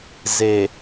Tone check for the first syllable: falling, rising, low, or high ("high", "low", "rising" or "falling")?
low